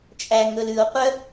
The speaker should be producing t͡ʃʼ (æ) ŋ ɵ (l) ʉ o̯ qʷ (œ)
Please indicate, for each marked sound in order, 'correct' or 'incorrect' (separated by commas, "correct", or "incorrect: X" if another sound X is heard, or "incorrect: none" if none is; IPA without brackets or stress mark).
correct, correct, correct